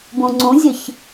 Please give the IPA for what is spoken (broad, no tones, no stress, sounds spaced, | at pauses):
b ũ ŋ͡ǀ ũ zʲ ə ç